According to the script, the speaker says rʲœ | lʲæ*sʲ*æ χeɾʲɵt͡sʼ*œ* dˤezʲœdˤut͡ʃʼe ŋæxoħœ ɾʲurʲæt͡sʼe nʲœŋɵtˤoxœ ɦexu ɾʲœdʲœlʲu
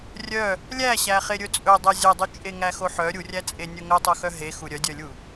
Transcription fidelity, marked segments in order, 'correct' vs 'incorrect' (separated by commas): incorrect, incorrect